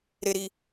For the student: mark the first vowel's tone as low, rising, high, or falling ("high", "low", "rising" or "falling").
low